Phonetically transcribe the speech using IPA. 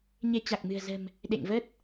ɲ e˧ t͡ɕ a˨˩ k̚ m ɨ̤˨˩ ə̯ z ə̤˨˩ m | ɗ ḛ˧˨ ŋ v ə˦˥ t̚

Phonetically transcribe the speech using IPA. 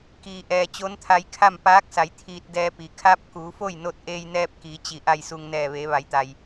k iː˧ ʔ ɛː˧ t͡ɕ o˧˥ n t̪ʰ a˧ j kʰ a˥˨ m p aː˧˥ k̚ s a˩˧ j t̪ʰ iː˧ t̚ d ɛː˧ p i˩ kʰ a˧˥ p̚ k uː˩˧ f o˥˨ j n o˧ t̚ ʔ eː˧ j n ɛː˧ p̚ k iː˩˧ t͡ɕ i˩ ʔ a˧˩ j s u˩ ŋ n ɛː˧˩ ʋ eː˩˧ ʋ a˩˧ j t̪ a˩ j

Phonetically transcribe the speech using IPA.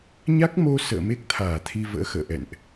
ɲ a˦˥ k̚ m o˧ s ə̰ː˧˨ m e˦˥ k̚ t̪ʰ aː˧˩ t̪ʰ i˧ v ə̰ː˧˥ x ə̰ː˧˨ ʔ ɛ̰˧˨ n ʔ

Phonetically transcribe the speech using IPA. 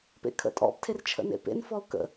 p ḛ kʰ ə̰ tʼ ɔ̰ p tʰ e r t͡ʃʰ ə̰ n ḛ p ḛ n f ɔ ʊ̯ k ə̰

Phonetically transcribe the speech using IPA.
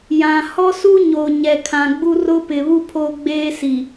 j ã˨ h ɔ˦ s u˦ ɲ o˨ ɲ ɛ˨ kʰ ã˨ ɡ͡b u˦ r ʊ˦ p ɪ˨ β u˦ pʰ oː˦ ɡ͡b eː˦ s i˨

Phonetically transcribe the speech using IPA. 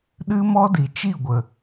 ɗ ɨ˦ m ɔ˦ d i˨ t͡ʃ i˦˨ ɡʷ ə˨

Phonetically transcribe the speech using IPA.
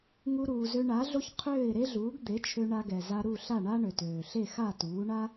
ŋ u˧ ɾ uː˩ z ø˧ ɳ a˩˥ ɮ o˥ ç qʰ øː˥˩ ɪ̯ ɾ e˥ ɮ uː˩˥ ɡ d̪ e˩˥ t͡ʃʰ ø˧ ɳ a˧ ɡ ɛ˩ z a˧ ɾ u˥˩ ɬ a˥˩ ɳ a˥ ɳ ø˩ t øː˩ ɬ e˥˩ x a˥˩ t uː˩˥ ɳ a˥

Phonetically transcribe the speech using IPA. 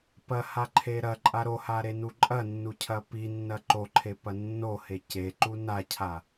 p ɐ h a ǃʰ e ɾ ɐ ǃʼ a ɾ o h a ɾ e n u ǃʼ ɐ nː u cʰ ɐ p i nː ɐ ǃ o ǃʰ e p ɐ nː o h e c e ǃ u n a cʰ a

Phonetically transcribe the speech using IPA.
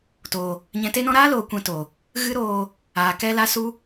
t oː˨ | ɲ ɛ̃˨ t e˧ n ɔ̃˧ ɾ aː˦ l oː˨ kʷ ɛ̃˧ t o˨ | ɣ ɨ˦ ɾ oː˧ | aː˨ k ɛ˧ l a˧ s u˧

